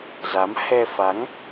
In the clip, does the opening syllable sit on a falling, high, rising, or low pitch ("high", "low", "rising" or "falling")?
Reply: rising